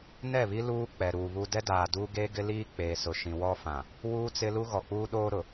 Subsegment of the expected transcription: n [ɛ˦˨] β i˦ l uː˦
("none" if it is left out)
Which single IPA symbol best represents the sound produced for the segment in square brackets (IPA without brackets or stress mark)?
ɛ˦˨